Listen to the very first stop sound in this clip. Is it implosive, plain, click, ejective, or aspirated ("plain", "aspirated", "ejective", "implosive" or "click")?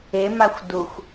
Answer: plain